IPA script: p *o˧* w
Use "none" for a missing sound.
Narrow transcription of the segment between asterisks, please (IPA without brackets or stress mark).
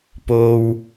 o˧